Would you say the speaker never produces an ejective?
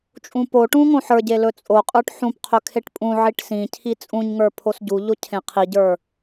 no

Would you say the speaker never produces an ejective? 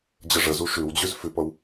yes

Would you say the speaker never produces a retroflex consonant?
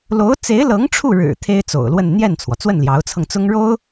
no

